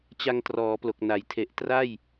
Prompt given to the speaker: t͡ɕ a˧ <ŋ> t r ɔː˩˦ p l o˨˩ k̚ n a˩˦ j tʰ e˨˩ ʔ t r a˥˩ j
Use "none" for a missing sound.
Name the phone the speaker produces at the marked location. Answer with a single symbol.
ŋ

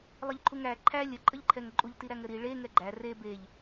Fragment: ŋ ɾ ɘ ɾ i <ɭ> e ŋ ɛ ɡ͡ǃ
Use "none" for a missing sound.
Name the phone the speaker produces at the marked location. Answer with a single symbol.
ɭ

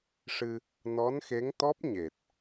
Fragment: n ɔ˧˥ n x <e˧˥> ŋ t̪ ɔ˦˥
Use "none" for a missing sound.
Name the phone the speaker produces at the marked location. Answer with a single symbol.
e˧˥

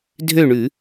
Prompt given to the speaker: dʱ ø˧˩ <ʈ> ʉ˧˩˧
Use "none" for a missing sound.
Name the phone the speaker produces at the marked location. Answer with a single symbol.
ɳ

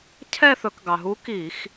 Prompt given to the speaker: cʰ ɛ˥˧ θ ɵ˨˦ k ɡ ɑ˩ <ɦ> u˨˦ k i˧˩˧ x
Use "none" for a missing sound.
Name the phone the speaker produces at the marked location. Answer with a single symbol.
ɦ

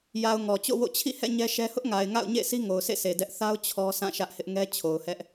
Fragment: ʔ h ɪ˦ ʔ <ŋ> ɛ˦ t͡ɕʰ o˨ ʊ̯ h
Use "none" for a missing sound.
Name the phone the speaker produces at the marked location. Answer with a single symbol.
ŋ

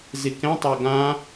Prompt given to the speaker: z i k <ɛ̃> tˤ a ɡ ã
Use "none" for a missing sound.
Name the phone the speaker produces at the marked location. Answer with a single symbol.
ɛ̃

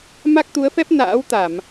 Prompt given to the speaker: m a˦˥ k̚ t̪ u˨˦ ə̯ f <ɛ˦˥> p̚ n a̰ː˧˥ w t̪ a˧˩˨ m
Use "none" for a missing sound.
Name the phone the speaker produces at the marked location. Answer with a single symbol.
ɛ˦˥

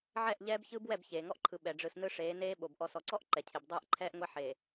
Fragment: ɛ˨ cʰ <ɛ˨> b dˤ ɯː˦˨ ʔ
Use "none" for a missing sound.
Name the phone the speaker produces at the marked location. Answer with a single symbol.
e˨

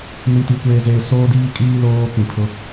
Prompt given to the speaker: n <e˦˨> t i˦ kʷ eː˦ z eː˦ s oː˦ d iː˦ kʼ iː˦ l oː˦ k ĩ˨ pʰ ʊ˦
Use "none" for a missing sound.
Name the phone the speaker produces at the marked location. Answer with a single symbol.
i˦˨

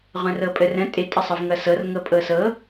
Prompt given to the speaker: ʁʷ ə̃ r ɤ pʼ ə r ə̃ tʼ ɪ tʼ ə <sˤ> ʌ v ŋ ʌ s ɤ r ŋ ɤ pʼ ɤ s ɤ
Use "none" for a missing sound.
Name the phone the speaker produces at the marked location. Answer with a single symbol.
sˤ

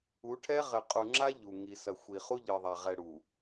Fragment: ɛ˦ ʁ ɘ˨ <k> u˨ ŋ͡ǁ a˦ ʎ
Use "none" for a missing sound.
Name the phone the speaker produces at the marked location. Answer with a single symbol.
qʼ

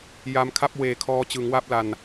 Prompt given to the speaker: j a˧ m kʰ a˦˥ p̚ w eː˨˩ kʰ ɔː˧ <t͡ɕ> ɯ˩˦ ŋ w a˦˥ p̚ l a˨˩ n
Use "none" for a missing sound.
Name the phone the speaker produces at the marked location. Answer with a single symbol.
t͡ɕ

